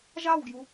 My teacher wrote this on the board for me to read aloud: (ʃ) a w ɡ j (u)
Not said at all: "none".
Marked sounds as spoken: ʒ, u

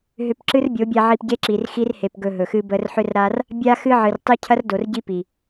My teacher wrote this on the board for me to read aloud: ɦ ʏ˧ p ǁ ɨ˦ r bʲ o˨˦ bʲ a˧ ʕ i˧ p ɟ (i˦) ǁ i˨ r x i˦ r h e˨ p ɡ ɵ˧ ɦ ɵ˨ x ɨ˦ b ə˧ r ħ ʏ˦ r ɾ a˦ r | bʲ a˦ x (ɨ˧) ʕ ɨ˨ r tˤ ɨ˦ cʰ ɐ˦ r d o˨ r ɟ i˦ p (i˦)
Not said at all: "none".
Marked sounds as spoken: e˦, ɨ˦, i˨

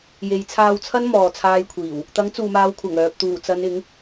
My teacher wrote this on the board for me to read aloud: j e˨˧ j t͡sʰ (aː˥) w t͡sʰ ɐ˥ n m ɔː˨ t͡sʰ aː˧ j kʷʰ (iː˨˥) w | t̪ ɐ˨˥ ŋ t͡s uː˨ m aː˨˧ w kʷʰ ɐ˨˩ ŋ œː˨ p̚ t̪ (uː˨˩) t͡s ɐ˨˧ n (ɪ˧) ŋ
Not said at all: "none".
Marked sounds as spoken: aː˧, iː˨˩, uː˨˩, ɪ˨˥

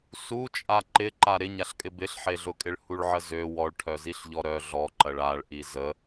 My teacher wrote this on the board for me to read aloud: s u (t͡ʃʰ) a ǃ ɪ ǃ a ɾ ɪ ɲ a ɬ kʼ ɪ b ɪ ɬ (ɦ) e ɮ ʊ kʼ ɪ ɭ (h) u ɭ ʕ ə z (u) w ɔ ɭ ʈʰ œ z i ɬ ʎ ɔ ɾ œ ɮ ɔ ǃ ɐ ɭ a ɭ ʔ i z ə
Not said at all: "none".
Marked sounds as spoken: t͡ʃʼ, ħ, h, ø

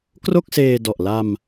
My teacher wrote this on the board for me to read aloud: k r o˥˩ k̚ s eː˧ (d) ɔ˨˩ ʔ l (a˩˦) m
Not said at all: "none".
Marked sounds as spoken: d, a˧

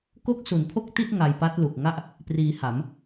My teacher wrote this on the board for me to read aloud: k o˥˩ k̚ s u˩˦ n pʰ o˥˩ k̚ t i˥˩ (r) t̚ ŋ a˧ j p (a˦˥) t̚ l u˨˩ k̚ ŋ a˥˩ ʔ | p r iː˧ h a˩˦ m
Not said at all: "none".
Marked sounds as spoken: none, a˦˥

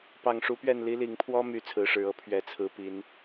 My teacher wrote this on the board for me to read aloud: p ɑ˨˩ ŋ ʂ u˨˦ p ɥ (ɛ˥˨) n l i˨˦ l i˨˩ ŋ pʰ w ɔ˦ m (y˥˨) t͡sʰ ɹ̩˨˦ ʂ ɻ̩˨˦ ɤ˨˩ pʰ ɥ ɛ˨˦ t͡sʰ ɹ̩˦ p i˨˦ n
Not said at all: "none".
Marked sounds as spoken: ɛ˥˨, y˥˨

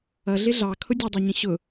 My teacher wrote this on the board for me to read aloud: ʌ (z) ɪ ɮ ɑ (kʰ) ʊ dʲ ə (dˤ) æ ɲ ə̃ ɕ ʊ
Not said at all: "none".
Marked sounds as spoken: ɮ, kʰ, dˤ

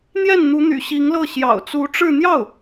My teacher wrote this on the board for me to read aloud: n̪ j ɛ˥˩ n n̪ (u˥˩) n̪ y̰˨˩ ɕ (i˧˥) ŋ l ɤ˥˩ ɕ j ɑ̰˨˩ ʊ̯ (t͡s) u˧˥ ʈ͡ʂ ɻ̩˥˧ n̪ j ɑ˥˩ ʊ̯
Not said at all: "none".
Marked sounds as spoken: u˧˥, i˧˥, t͡s

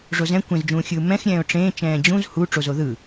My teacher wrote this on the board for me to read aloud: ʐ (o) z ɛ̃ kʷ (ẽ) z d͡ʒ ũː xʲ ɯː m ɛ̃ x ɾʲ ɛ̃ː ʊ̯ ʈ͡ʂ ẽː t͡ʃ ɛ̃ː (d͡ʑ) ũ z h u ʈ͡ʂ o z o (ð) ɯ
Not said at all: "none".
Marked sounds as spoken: o, ẽ, d͡ʑ, ð

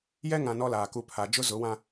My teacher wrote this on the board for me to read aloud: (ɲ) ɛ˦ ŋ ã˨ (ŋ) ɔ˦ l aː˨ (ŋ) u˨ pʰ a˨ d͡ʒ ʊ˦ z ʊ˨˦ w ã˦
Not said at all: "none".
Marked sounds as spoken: j, n, k

